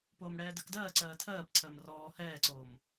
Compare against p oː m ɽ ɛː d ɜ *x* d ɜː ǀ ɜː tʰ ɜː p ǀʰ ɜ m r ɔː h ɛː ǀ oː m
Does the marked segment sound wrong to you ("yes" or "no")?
yes